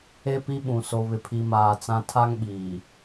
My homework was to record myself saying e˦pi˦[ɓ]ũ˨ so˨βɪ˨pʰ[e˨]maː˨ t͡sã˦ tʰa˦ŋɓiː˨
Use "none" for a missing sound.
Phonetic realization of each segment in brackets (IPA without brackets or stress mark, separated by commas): ɓ, i˨